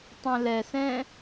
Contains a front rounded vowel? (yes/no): yes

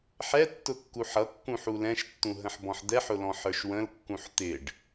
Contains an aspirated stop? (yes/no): no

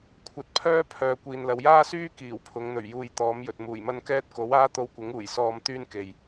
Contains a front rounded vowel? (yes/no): yes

